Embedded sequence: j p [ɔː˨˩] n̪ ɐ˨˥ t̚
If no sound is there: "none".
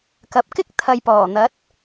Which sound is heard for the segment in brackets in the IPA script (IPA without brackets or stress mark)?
ɔː˨˩